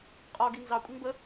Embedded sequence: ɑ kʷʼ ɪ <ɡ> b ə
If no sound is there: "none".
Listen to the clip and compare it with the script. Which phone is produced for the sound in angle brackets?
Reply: ŋ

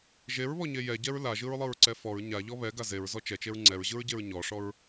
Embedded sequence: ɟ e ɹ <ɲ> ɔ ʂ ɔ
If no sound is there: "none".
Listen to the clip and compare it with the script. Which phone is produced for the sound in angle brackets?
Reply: ɲ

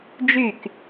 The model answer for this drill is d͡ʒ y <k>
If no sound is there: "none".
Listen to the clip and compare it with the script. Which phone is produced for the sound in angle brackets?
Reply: k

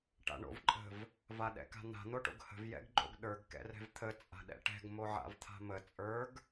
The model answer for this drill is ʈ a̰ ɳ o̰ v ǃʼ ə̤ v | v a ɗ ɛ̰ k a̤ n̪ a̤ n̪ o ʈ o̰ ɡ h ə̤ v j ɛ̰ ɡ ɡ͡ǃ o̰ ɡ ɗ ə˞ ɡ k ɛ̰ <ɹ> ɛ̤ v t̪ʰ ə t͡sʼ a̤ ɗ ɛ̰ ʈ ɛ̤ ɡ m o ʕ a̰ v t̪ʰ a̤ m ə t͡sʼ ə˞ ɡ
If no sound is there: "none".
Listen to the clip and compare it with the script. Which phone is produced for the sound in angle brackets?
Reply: r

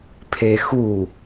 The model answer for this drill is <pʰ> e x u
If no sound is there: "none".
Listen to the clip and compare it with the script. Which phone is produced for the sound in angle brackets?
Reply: pʰ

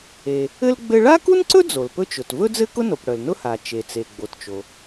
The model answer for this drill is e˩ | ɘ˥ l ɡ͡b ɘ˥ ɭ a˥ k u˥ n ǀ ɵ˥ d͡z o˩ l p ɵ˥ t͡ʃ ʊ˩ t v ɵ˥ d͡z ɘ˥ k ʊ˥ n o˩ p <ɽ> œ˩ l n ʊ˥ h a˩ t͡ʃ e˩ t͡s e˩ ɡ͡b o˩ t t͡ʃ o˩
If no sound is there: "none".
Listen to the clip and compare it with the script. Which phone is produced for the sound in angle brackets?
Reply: ɽ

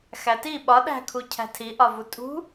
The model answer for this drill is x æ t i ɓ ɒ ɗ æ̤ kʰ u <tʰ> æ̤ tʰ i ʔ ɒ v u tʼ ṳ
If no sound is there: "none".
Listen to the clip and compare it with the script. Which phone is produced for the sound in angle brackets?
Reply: cʰ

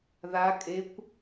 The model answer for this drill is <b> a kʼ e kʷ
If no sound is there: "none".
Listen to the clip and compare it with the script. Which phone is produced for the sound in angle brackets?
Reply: ð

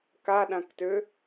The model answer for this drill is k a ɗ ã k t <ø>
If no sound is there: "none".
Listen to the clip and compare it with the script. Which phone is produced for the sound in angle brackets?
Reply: ø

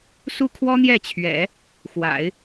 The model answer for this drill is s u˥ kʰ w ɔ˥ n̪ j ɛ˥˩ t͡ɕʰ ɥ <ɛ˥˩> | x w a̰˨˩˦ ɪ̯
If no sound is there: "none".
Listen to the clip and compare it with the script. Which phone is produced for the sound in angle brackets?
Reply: ɛ̰˨˩˦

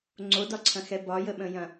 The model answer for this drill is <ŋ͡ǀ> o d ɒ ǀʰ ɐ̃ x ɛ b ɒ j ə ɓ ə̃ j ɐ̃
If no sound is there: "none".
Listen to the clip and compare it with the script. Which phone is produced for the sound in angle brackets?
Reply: ŋ͡ǀ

